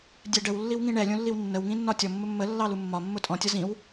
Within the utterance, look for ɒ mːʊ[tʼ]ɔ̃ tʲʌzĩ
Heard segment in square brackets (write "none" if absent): tʼ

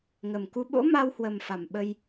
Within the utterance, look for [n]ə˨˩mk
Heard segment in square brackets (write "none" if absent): ŋ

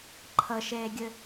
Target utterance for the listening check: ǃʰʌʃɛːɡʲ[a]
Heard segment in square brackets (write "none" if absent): ə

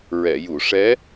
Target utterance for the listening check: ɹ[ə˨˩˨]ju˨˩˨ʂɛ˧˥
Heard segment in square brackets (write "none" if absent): ɛ˨˩˨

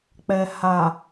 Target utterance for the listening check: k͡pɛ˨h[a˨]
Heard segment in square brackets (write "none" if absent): a˨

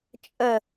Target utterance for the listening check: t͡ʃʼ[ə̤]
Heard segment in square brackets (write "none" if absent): ə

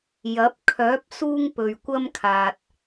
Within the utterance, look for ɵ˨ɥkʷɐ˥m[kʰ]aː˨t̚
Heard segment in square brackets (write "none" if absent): kʰ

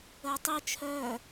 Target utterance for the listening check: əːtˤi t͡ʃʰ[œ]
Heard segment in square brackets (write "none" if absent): œ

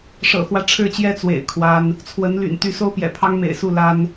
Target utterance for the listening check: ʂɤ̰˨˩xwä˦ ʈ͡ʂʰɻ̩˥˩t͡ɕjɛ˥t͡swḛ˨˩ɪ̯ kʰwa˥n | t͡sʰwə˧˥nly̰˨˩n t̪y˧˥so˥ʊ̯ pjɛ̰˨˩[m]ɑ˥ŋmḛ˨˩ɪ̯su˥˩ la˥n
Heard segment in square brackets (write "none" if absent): pʰ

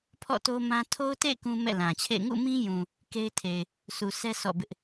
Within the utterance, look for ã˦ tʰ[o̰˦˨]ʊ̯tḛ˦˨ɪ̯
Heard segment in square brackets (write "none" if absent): o˦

